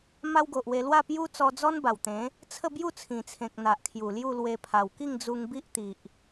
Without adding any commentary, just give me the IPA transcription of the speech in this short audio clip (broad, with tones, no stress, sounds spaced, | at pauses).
m a˦ w ɡ o˨ ʔ w e˧ l w a˥˧ p j u˦ t͡s ɔ˧ d͡z ɔ˦ n b a˨˩ w t̪ ẽ˨˦ | t͡sʰ ə˥˧ b j u˥˧ t͡sʰ ĩ˨˩ t͡sʰ ẽ˨ k̚ n̪ a˨ ʔ kʰ j u˨˩ l j u˥˧ l w e˧ pʰ a˨˩ w k i˥˧ ŋ d͡z u˧ ŋ b i˦ ʔ t̪ i˨ ʔ